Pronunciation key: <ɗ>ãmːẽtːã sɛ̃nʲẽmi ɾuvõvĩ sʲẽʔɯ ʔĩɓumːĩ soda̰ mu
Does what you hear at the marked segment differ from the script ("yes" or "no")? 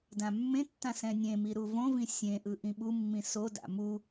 yes